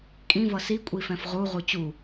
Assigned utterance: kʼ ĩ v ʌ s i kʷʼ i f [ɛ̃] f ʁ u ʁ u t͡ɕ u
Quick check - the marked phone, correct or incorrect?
correct